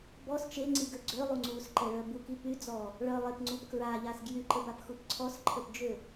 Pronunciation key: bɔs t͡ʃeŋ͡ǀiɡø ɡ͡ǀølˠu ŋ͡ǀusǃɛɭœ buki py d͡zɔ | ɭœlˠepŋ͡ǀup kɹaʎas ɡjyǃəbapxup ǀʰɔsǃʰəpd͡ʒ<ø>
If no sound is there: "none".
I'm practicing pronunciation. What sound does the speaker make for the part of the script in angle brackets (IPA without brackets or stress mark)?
ø